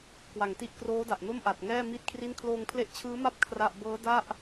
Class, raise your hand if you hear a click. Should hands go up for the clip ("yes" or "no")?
no